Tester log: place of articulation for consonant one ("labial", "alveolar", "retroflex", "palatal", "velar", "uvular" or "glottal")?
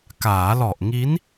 velar